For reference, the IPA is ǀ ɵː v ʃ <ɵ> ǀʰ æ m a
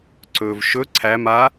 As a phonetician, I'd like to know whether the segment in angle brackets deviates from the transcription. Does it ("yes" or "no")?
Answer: no